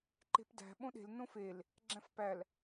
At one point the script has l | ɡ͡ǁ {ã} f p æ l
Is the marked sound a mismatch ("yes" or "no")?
yes